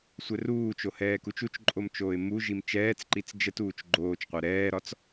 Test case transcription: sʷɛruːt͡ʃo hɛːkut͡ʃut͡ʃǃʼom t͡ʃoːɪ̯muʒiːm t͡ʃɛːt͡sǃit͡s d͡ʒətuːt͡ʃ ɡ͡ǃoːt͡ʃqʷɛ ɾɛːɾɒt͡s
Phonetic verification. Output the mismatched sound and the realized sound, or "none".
iː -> i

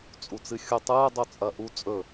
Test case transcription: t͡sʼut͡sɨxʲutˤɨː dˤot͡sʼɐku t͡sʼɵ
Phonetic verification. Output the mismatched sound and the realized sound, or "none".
k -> ʔ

